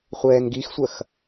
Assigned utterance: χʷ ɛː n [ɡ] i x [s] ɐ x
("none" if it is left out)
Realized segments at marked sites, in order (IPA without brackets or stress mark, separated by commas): ɡ, sʷ